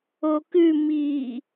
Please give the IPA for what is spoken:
o k ʉ m i

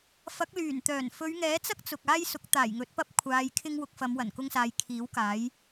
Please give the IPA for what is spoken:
f ɐ˨˥ k̚ l yː˨˩ n t̪ œː˨˩ n f ɵ˨˧ ɥ ŋ ɛː˨˥ t͡s ɐ˥ k̚ t͡s ʊ˨ k̚ aː˥ j s ʊ˨˥ k̚ t̪ aː˨˩ j ŋ ɵ˨˥ t̚ p ɐ˥ p̚ kʷʰ aː˧ j kʰ ɪ˥ ŋ w ʊ˧ k̚ f ɐ˨˧ m w ɐ˨˩ n k ʊ˥ ŋ s aː˧ j kʰ iː˨˥ w k aː˨˥ j

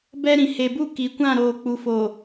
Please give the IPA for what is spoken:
b ɛ˦ ɾ ĩ˨ h e˨ b u˦˨ k i˨ kʷ ã˦˨ ɾ oː˨ k͡p u˨ f o˨

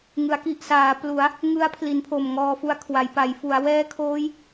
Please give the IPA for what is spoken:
ŋ ɯ˩˦ a̯ k i˨˩ ʔ s aː˩˦ p l u˩˦ a̯ | ŋ ɯ˦˥ a̯ pʰ l i˩˦ n pʰ o˨˩ m ŋ ɔː˧ f u˦˥ a̯ kʰ w a˩˦ j p a˩˦ j f u˩˦ a̯ w ɛː˦˥ kʰ oː˦˥ j

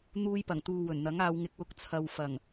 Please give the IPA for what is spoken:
n̪ uː˧ j p ɐ˨˩ ŋ t̪ uː˨ w ɵ˨˩ n n̪ ɐ˨˥ ŋ aː˨˧ w ŋ ɪ˨ k̚ w ʊ˧ k̚ t͡sʰ ɐ˨ w f ɐ˨˩ ŋ

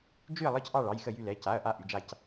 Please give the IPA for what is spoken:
d͡ʒ y˦˨ ɐ̯ lˠ ɤ˦˨ c ʔ ɑ˦˨ ɭ ɑ˩˧˩ j x ə˦˨ j y˦˨ l ɛ˩˧˩ c a˩˧˩ ɐ̯ ʔ a˦˨ ʔ y˩˧˩ d͡ʒ a˦˨ c

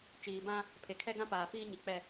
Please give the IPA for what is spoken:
t͡ʃ iː˨ b ã˦ | pʰ e˨ kʰ ɛ˦ ɡ ã˦ p aː˨ f iː˦ ɲ i˨ k͡p ɛ˦˨

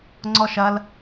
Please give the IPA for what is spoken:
ŋ͡ǀ ɔ ʃ ɐ l

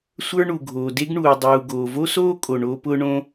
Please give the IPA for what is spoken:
sʷ ə˞˥ ɳ u˩ ɡʱ oː˩ d e˥ ɡ ɳ uː˩ dˤ uː˩ ɡ oː˩ v o˥ s oː˥ kʼ o˩ ɳ oː˥ p ʊː˥ ɳ õ˥

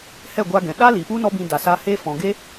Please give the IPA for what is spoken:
h ɛ˦˨ ɡʷ a˧ ɡ ɛ̃˨ ɗ a˦ l i˨ p u˦ n ɔ˦ b ĩ˧ d a˨ s aː˧ h eː˦ f ɔ̃˨ ɡ e˦

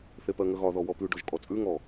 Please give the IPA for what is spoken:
θ e p ɜ ŋ ə ɣ ɒ ð ɔ w ɔ p ʉ ɖ ɔ ʒ kʼ ɔ t͡sʼ ʉ ŋ ɔ

